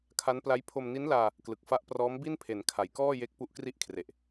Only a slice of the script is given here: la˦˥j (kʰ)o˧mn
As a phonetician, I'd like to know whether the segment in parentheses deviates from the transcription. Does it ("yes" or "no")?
yes